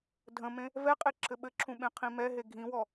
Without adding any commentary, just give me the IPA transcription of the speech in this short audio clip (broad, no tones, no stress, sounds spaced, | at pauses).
dʱ ə̃ m ẽ | v ɛ qʼ e ǁʰ ɘ ɓ ɘ ǁʰ ũ ɓ ẽ qʰ ĩ m ɛ ɦ e ɡʱ ĩ w ɔ